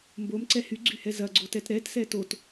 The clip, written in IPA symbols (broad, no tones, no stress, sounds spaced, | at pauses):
m b o m ǀ ɛ h y ɡ͡ǀ y h ɛ z ɐ ɡ͡ǀ o t ɛ t ɾ ɛ t s ɛ t o t